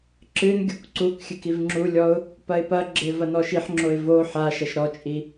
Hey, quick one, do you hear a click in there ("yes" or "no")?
yes